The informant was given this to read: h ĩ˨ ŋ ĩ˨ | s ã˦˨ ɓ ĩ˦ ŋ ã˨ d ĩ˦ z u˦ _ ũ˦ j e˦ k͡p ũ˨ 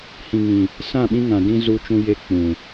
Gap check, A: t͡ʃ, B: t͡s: A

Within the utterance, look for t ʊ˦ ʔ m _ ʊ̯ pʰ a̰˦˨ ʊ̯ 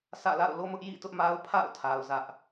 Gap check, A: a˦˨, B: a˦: B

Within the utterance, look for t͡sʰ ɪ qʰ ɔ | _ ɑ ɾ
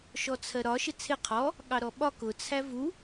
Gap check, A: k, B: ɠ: B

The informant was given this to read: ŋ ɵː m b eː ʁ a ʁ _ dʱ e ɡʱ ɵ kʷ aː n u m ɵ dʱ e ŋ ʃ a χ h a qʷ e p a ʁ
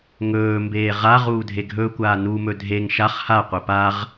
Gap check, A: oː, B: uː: B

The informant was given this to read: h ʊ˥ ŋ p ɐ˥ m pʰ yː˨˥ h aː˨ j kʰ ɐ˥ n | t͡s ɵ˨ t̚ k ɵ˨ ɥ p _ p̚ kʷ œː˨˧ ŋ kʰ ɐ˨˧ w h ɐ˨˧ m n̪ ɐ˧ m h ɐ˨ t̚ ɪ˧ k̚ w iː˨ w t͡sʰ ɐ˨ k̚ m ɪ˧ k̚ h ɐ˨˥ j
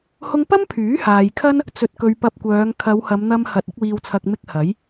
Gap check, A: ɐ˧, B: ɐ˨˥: A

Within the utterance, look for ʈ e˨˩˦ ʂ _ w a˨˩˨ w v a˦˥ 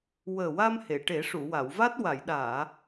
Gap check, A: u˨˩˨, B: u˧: A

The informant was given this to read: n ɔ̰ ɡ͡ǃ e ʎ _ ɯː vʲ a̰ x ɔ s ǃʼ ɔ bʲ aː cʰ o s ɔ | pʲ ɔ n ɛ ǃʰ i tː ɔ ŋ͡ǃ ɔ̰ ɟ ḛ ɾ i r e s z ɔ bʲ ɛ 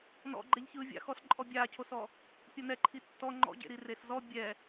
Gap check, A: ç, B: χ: A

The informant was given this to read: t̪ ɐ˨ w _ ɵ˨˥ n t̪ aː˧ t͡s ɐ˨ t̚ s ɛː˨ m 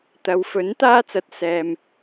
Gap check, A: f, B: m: A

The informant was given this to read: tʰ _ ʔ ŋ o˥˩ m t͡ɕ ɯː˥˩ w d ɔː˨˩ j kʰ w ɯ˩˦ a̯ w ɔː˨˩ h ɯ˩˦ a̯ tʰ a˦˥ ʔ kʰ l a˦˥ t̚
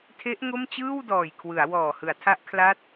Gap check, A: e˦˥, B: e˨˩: A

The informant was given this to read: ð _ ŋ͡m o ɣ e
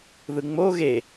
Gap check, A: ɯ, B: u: A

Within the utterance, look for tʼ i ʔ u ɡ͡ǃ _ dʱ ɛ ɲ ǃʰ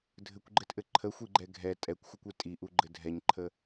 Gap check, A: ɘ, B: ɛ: A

